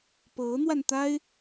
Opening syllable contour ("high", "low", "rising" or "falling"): rising